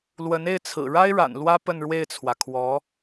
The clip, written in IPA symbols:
l w ə˧˥ n e˥˩ ɪ̯ t͡sʰ ɹ̩˨˩ ɻ a˥ ɪ̯ ɻ a̰˨˩ n l w ä˥ p ə˥˧ n ɻ w e˥˩ ɪ̯ t͡sʰ w ä˩ kʰ w ɔ˧˥

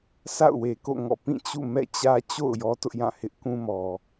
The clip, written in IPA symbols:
sʰ a̰˦˨ ʊ̯ w e˨ k o̰˦˨ ŋ ɔ̰˦˨ p ĩ˦˨ t͡ɕ ṵ˦˨ m ɛ̰˦˨ t͡ɕ ä˦ t͡ɕ o̰˦˨ ʊ̯ j ɔ˦ t ʊ˦ ʔ j ã˦˨ h ɪ˦ ʔ k ũ˦ m ɔ˨

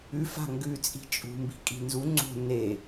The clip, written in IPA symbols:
ʉ f a̤ ŋ ɡ ʉ t͡sʼ i̤ t͡ʃʼ ṳ m b i̤ kʼ i̤ n z u ŋ͡ǀ o̤ n e

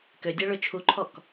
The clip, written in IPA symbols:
k ø dʲ a ɭ ø t͡ʃʰ u ǃʰ ɔ k

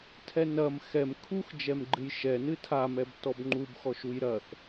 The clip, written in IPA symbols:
tʰ ɛ n ɐ m x ɛ m kʰ u x d͡ʒ ɛ m ɡ͡ǃ ɨ j ʃ ɛ n ɨ tʰ a m ɛ b t ɔ b ŋ͡ǃ u b x ɔ ʃ u j ɾ ɐ θ

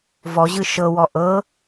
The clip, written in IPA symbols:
v ɔ ʑ ɯ ʃ ɤ w ɔ ʔ ɤ

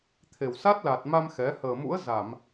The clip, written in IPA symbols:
t̪ʰ e˨˩ w s a˦˥ t̚ l a˨˩ t̚ m a˧ m x ɛ˨˦ h əː˨˩ m ṵ˧˥ ə̯ z a˧˩˨ m

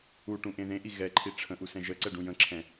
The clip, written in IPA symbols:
u ʈ ũ ʔ ẽ ð ẽ ʔ i ɣ ɛ ǃʰ i ʈ͡ʂʰ ə̃ ʔ u s ɛ̃ ʒ ə ǀ ɛ ɖ ũ j ə̃ ǁʰ ɛ̃

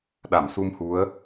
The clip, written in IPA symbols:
ɗ a˧˩ m s u˧ m h u˨˦ ə̯

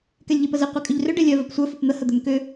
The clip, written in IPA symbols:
k ɛ lʲ ʎ e p ə z ɪ qʷ e kʼ ʏ ʎ r ʏ ɖ e lʲ œ v ə p sʷ œ f ɵ p n̪ ə h ə d̪ œ m k ʏ

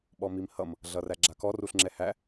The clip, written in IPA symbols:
ɓ ɔ m i m h ʌ m | ɮ ʌ r æ ɡ͡ǁ a k ɔ r u ɬ ŋ͡ǁ ɛ h æ

